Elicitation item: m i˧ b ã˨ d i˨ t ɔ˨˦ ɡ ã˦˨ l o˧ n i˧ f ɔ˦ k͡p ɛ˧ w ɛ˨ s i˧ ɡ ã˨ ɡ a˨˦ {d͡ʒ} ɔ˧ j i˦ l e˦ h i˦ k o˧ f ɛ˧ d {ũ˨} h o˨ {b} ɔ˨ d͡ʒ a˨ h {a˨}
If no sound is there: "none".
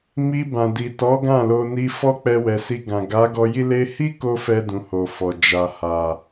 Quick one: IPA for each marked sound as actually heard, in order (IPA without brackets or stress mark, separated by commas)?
ɡ, ũ˨, f, a˨